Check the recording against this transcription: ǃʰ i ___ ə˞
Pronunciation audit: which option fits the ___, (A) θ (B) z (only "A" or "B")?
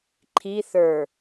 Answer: A